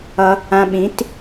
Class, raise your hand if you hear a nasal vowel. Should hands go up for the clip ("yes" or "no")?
yes